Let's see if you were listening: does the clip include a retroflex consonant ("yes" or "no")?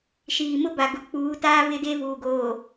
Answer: no